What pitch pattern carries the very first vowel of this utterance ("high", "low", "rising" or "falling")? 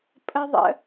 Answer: high